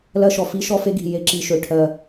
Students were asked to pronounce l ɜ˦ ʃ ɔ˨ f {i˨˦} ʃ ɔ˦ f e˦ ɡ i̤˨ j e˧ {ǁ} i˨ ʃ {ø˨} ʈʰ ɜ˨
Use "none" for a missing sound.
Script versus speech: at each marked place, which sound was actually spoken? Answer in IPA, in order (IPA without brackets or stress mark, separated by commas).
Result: i˦, ǁ, ø˨